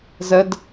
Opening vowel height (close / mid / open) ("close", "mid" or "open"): mid